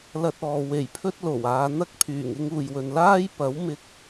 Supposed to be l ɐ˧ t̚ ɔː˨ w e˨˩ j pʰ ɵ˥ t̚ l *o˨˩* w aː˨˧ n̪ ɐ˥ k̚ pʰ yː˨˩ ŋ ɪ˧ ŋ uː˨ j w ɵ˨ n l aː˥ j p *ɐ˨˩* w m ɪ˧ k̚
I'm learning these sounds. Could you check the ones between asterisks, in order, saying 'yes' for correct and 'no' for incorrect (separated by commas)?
yes, no